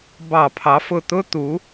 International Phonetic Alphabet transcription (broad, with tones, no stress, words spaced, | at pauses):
bɑ˧˩˧pʰɑ˨˥fʊ˦˨ t̪ʊ˥t̪u˨˥